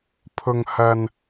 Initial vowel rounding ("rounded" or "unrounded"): rounded